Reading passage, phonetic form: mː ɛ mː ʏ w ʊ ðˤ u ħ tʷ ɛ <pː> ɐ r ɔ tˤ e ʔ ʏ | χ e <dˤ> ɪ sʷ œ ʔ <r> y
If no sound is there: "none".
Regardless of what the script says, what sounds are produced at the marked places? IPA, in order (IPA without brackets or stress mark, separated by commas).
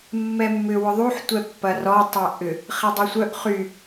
pː, dˤ, χ